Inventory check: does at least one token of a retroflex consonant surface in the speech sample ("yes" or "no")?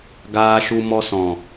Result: no